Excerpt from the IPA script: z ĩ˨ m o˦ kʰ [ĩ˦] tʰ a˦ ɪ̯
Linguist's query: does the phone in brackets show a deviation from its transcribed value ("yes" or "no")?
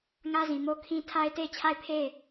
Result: no